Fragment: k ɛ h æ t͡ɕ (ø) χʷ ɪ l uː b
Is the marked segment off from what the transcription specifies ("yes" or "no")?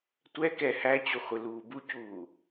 yes